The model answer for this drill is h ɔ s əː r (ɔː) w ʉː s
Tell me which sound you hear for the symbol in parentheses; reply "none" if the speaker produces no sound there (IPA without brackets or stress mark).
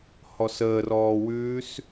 ɔː